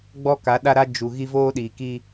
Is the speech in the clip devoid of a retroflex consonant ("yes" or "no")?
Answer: yes